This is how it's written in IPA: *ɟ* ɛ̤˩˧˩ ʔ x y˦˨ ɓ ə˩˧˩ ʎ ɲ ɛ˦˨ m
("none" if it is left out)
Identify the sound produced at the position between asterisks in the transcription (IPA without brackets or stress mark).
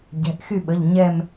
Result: ɟ